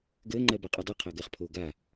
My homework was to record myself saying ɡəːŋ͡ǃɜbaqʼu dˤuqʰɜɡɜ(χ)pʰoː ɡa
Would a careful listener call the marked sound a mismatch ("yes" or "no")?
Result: no